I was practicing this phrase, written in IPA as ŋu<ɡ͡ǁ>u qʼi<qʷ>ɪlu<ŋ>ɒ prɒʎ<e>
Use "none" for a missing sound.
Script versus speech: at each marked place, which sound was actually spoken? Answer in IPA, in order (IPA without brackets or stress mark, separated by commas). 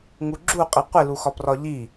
ɡ͡ǁ, qʷ, x, i